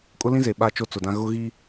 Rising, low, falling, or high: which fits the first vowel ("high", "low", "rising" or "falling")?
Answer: high